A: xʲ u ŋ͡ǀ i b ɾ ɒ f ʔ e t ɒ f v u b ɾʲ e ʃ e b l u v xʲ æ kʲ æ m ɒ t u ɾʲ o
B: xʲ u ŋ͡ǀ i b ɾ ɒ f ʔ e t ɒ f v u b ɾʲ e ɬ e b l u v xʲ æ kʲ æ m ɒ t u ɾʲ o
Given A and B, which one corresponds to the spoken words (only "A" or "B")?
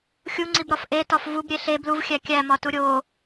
B